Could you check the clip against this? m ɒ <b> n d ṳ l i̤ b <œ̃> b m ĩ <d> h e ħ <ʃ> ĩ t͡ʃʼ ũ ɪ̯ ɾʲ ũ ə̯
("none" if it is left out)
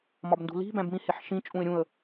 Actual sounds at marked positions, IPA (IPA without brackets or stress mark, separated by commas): b, æ̃, none, ʃ